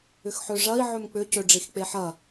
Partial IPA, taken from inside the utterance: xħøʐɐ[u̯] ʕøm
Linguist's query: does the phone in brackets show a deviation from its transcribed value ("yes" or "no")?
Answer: yes